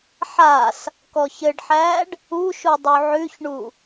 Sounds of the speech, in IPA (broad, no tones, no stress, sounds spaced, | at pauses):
ħ a s | k ɔ ç ɘ ɖ ħ æː ɖ | u ʃ u dˤ u ʕ ʉ ç ɳ u